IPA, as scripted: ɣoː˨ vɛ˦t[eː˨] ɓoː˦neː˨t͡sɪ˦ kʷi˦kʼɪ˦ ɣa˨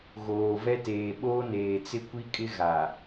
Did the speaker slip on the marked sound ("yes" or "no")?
no